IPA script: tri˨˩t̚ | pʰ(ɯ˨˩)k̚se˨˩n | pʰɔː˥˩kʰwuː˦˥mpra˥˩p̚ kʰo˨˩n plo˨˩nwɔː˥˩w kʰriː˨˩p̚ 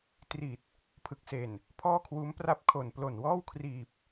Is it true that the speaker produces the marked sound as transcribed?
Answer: yes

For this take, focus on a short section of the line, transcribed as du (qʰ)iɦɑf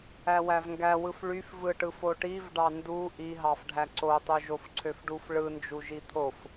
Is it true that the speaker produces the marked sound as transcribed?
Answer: no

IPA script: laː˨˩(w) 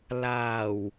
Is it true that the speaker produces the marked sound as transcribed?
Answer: yes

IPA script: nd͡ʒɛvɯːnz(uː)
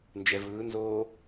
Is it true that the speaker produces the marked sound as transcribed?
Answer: no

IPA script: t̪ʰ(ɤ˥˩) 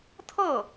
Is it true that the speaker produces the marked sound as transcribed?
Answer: yes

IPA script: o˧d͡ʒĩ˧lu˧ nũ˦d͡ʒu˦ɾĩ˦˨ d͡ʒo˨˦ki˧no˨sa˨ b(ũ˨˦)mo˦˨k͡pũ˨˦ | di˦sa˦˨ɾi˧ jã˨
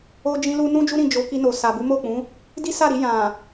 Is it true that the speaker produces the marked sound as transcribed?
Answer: no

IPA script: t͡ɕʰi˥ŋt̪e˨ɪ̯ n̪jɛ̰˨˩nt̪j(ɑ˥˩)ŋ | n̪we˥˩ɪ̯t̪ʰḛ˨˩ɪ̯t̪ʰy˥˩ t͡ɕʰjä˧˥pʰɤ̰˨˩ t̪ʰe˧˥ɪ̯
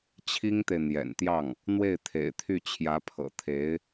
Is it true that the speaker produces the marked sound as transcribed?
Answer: yes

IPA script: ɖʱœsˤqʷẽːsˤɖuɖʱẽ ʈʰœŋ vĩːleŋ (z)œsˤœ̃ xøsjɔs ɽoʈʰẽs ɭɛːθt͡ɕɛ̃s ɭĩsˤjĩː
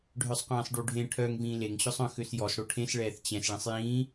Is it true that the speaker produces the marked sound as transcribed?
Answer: no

